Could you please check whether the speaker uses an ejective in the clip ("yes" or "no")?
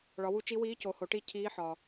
no